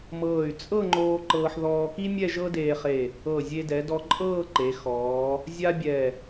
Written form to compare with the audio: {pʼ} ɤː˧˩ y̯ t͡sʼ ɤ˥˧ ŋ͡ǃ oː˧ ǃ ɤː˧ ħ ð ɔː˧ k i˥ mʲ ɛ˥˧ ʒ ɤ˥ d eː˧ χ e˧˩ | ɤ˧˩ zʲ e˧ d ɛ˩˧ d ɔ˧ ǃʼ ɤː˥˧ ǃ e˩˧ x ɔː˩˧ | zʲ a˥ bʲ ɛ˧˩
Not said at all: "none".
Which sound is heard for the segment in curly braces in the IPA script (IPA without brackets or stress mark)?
m